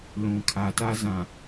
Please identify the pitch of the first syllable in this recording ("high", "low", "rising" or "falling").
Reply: low